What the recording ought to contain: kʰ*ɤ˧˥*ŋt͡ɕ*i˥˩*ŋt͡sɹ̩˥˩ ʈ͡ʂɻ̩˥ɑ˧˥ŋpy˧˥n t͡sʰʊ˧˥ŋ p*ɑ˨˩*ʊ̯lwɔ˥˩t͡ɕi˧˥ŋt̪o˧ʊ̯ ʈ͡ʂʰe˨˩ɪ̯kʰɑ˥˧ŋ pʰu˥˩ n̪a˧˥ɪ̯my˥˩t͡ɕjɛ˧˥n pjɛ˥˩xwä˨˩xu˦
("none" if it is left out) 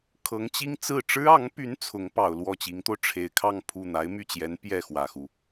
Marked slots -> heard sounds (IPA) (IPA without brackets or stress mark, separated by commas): ɤ˧˥, i˥, ɑ˨˩